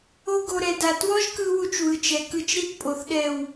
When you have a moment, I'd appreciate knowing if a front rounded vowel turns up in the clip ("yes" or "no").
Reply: no